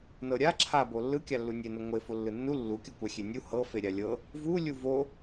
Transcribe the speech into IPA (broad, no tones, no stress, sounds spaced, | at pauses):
n ɤ ɾʲ a ǁʰ a b o lː ɯ kʲ a lː u nʲ e n o ŋʷ e f o lː ɯ nː u lː u kʲ u kʷ a xʲ e nʲ u h ɤ f e ɾʲ a lʲ ɤ | v u lʲ u v o